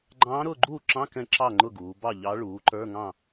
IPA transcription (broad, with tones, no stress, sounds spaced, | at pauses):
ɡ͡ǃ ɑ̃ː˧˥ ɾ ʊː˥˨ ɡ͡ǃ uː˥˨ ǁ ɑ̃˧˥˧ k ɛ̃˥˨ ǁ ɑ˥˨ ŋ͡ǃ ʊ˥˨ ɡ uː˩˧ b ɑ˥˨ ʎ ɑ˧˥ ɭ uː˩˥ ǃ ə˞˧˥˧ ŋ ɑ̃˥˨